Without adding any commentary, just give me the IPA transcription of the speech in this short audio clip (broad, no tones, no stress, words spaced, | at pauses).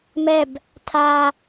mɛb | tʰa